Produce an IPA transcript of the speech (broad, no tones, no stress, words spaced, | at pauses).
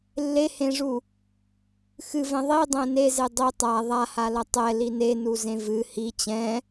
lːehẽʐu | xɨvɛ̃ ðˤidˤɛ̃ neze dˤi tˤa ðˤahalɐ tˤɛli nenuzẽ vɨ hi t͡ɕɛ̃